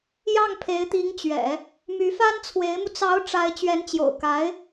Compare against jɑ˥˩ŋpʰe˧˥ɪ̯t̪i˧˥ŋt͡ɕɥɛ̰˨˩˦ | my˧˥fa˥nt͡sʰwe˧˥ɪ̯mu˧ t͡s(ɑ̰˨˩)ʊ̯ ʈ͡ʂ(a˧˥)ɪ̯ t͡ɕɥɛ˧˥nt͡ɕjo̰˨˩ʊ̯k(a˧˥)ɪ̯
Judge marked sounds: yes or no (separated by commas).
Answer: no, yes, yes